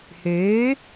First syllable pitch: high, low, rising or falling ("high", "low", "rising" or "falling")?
rising